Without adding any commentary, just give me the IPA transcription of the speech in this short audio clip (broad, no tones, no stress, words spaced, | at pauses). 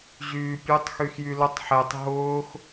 ʑyːpʲutˤ xyxjylʊtˤ ħetˤ ɦʊːx